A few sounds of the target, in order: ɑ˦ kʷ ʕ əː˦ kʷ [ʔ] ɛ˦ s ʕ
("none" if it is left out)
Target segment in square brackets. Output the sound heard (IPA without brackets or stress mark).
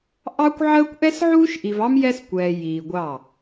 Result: ʔ